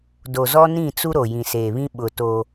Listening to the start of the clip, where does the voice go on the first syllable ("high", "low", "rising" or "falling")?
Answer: low